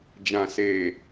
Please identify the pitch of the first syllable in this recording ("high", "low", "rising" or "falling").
low